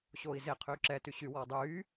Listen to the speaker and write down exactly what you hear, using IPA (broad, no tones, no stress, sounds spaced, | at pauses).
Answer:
ɕ oː i̯ z e qʰ yː ǁ ɛ t y ɕ y w ɔː dˤ yː